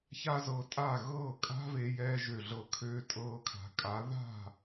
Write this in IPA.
ça˦zɤ˧tʼa˦˨ ɣɤː˦˨kʼa̤˦ve˧ jɛː˧ʒø˨ɮɤ˨kʰøː˧ tʼɤː˧kʰa̤˨kʼa˨˦ ða̤˦˨

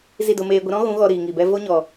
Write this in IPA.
zi˦˨do˧meː˧ ɡʷə˧ɾɔ̃˦ɣũ˨˦ ɣɔ˧ ɾiː˨ŋi˨bɛ˧ vo˦ɲɔ˨

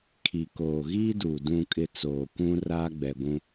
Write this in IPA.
kʰi˨koː˨ɣiː˦du˨ dũ˨kʼɪ˨ t͡soː˨kʷũ˦ raː˦ɡ͡bɛ˨ɡʷũ˦

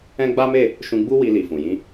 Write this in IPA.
ɛ̃˦ɡ͡ba˦me˦˨ | ʃũ˧ɡ͡bu˦ wi˧li˨fũ˨jĩ˧

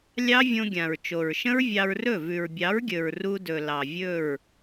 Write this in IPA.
lʲɑ˦vʲõ˧ɡʲã˨ɹ t͡ʃo˨ɹʃə̃˦ɹvʲɑ˧ɹrɵ˦˨ vʉ˨ɹbʲɑ˨˦ɹɡʲɵ˨ɹ ru˧dɵ˨ lɑ˨vʲɵ˦˨ɹ

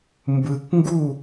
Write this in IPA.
mbɯ˨kŋɡu˦˨

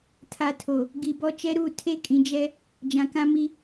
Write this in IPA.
tʰa˨ tʰo˨ | ɡi˨bɔ˦ t͡ʃɛ˦ɾu˦˨ tʰe˦kʼĩ˨d͡ʒɛ˦ | d͡ʒã˨kã˦mi˦

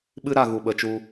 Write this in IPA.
ɓɨ˦ɾa˦˨ ɣu˨ɓə˨t͡ʃu˧

